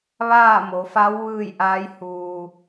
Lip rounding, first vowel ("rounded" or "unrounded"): unrounded